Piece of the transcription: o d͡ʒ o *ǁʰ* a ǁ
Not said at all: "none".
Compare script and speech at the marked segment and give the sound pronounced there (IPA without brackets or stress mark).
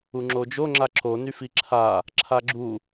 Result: ŋ͡ǁ